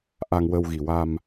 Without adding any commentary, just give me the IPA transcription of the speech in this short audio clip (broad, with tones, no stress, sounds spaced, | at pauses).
ʔ a˧ ŋ w ə˧ w ɣ i˨˩ w a˧ m